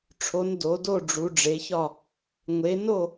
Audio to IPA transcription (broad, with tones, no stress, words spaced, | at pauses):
ʈ͡ʂʰo˨˦n do˨˦do˥˧ɖ͡ʐu˨˦ ɖ͡ʐe˨˦çɒ˥˧ | ŋʷe˨˦no˥˧